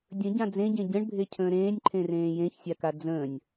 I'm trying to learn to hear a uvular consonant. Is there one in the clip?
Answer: no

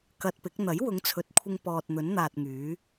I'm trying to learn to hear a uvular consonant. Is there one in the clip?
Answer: no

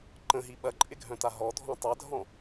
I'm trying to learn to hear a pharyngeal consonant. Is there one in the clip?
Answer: no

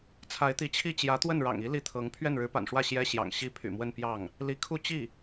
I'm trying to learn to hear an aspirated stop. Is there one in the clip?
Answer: yes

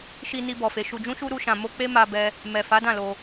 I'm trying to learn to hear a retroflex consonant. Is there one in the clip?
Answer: no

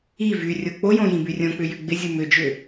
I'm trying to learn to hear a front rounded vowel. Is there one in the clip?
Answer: yes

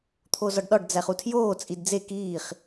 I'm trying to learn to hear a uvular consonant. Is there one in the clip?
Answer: yes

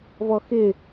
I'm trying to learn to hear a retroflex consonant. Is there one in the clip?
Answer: no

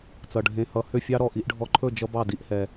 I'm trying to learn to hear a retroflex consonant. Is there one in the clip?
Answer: yes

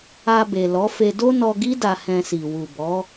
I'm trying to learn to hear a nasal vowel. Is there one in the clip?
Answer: yes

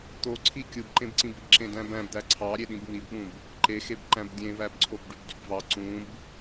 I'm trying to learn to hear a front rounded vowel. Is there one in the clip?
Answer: yes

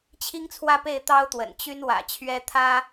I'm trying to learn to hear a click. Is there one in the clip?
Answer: no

